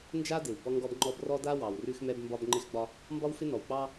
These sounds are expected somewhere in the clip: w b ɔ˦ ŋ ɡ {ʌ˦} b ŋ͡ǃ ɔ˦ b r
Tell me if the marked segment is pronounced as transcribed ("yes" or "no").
no